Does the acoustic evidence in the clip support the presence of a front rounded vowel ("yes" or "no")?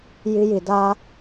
no